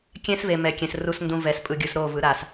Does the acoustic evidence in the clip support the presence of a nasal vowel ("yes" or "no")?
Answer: yes